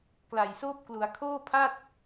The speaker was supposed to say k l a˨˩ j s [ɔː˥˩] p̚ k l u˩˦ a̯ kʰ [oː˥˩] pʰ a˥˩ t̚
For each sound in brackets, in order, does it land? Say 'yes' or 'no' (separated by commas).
no, yes